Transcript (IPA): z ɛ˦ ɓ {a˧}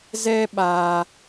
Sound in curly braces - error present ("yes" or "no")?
no